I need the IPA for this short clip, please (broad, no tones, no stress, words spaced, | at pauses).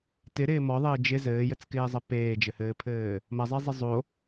tɪɾɪː mɔðˤɘː d͡ʒɪ zɘːjɘt͡skɪːzˤɐ peːd͡ʒɘhɘːpʰɘː | mɐzˤezˤɘ zˤo